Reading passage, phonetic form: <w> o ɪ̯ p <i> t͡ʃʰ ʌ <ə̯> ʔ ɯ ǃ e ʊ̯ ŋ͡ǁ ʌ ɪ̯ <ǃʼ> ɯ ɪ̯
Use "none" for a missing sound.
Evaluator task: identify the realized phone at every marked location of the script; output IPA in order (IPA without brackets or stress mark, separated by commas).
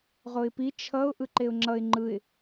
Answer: ʁ, i, ʊ̯, ŋ͡ǃ